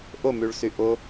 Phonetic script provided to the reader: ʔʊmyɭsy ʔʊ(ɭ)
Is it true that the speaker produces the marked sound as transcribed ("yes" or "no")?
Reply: no